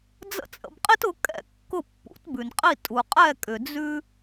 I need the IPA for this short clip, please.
d͡z ə̰˥ t͡sʼ ə̰˧ b qʼ i˥ t ʊ˩˥ kʼ ɛ̰˥˩ kː ʊ˥˩ pː ṵ˩˥ t b ʉ˩ n qʼ i˥˩ tʼ u˩ qʼ ɛ˥˩ kʼ ʏ˩ d͡z ʉ˥

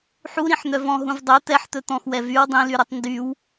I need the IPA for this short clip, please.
ħ u ɾ ĩ ħ n̪ œ v ɔ̃ ɦ ũ v dˤ o t̪ ɛ ħ t̪ ɵ t̪ ɔ̃ x w ɛ v y w dˤ ĩ l y ɾ ɵ tˤ n d y w

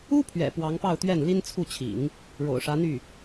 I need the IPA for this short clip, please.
u˥ pʰ ɥ ɛ̰˨˩ p w ɑ˧˥ ŋ p ɑ˥˧ ʊ̯ t̪ ɥ ɛ˥˩ n l i˥ n t͡sʰ u˥˩ t͡ɕʰ ḭ˨˩˦ ŋ | ɻ o̰˨˩ ʊ̯ ʂ ä˧˥ n̪ y˥˩

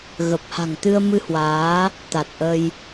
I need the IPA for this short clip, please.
ɣ ə˨˩ p̚ h a̤˨˩ ŋ t̪ ɨ˧ ə̯ m ɨ˧ h w aː˨˦ | t̪ a˨˩ t̚ ʔ ə˧ j

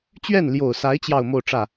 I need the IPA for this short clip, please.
t͡ɕ ɥ ɛ˥˩ n l j o˨˩ ʊ̯ s a˧˥ ɪ̯ t͡ɕ j ɑ˥˧ ʊ̯ m o˥˧ ʊ̯ ʈ͡ʂ ä˥˩

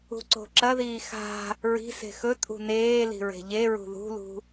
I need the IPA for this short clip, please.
ṳ ǀ o̤ ǁ ɐ ð iː x a̤ | ɹ i̤ s e̤ x ɵ tʼ ṳ n eː l i̤ ɹ e̤ ʎ e ɹ ṳ ð ṳ l ṳ

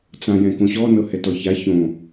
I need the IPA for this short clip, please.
t͡s ã j ɛ̃ k õ ɕ ɔ n ɤ h ɛ t ɔ ç a ç õ

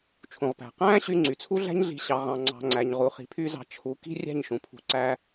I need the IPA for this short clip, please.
t͡ʃʰ ũ˨ ʁ p æ̤˨ q æ̃ː˦ ɕ y˧ ŋ͡ǀ y˨ t͡sʰ u˦ ɮ æ̤˦ ɲ ɮ i̤˧ ɕ ɑ˧ ʁ ɑ̃˧ ŋ͡ǀ ɑ̤˧ ŋ͡ǀ æ˨ ɲ ʁ u˨ χ i̤˨ pʰ y˧ z ɑ̤˨ t͡ʃʰ u˨˦ k i̤˦ rʲ æ̤˦˨ ɲ ʃ ũ˨ pʰ ṳ˧ ǀ æ˦

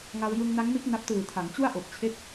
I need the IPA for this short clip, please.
ŋ a˧ w j ɯ˧ ŋ n a˦˥ ŋ m i˦˥ t̚ n a˦˥ p̚ t ɯː˨˩ tʰ a˩˦ ŋ t͡ɕ u˥˩ a̯ ʔ o˨˩ k̚ t͡ɕʰ e˦˥ k̚

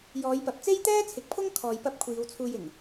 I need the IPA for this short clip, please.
j ɔː˨˧ j p ɐ˨˥ p̚ t͡s e˥ j t̪ ɛː˥ t͡sʰ ɪ˨˥ k̚ pʰ ʊ˥ ŋ kʰ ɔː˧ j p ɐ˥ p̚ kʷʰ iː˨˧ w t͡sʰ uː˧ j ɪ˨˩ ŋ

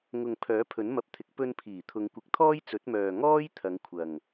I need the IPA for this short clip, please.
ŋ ʊ˨ ŋ pʰ œː˨˥ pʰ ɵ˨˥ n m ɐ˨ p̚ t̪ʰ ɪ˨˥ k̚ p ɵ˧ n pʰ iː˨˩ t̪ʰ ʊ˨˧ ŋ kʷ ɪ˨˥ k̚ t̪ʰ ɔː˥ j t͡s ɵ˨˥ t̚ m œː˨ ŋ ɔː˥ j t̪ʰ ɐ˨˧ ŋ kʷʰ ɐ˨ ŋ

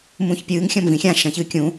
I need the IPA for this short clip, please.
m ũː ç pʲ ɨː ŋ xʲ ɐ̃ m v ĩ xʲ ã ʃ ɐ̃ ç ɨː kʲ ũ

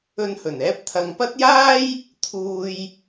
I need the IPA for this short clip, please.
ɵ˧ n h ɵ˨˩ n ɛː˥ p̚ t̪ʰ ɐ˨˧ ŋ p ɐ˥ t̚ j aː˥ j | t̪ʰ uː˧ j

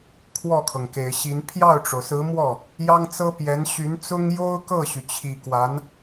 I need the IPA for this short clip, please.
kʰ w ɔ˥˩ kʰ ɤ˩ ŋ k e˨˩ ɪ̯ ɕ i˧˥ n pʰ j ɑ˥˩ ʊ̯ ʈ͡ʂ o˩ ʊ̯ s ɹ̩˧˥ m w ɔ˥˩ | j ɑ˥ ŋ t͡s ɤ˥ p j ɛ˧˥ n ɕ y˧˥ n t͡s ʊ˥ ŋ j o˥ ʊ̯ k ɤ˥˩ ɕ y˩ t͡ɕʰ i˨˩ k w a˧˥ n

